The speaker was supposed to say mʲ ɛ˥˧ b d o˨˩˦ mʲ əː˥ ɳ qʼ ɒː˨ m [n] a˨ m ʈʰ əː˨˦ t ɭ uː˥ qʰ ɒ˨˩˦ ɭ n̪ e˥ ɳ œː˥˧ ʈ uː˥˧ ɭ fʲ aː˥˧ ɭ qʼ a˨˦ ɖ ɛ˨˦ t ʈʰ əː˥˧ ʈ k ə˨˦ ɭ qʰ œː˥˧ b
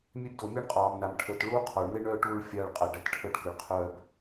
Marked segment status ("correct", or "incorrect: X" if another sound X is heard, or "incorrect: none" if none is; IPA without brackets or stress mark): correct